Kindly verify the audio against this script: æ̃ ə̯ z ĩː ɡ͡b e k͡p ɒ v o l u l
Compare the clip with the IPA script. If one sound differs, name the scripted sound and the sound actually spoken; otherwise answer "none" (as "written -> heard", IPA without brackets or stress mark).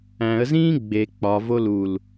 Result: none